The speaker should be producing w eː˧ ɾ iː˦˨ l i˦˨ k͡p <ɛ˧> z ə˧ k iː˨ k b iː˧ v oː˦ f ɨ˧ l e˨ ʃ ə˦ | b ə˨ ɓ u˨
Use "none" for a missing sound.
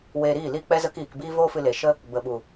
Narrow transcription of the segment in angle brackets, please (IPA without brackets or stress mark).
ɛ˧